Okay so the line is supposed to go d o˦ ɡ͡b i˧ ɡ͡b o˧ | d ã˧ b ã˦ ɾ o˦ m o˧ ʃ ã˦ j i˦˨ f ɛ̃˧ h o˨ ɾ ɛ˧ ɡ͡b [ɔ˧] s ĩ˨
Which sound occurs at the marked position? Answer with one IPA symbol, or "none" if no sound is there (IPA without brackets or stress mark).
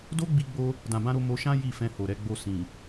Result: o˧